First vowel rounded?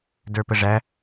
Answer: no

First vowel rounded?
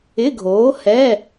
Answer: no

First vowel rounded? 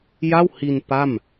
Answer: no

